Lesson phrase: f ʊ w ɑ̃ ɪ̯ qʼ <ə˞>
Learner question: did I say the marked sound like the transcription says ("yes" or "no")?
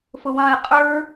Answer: yes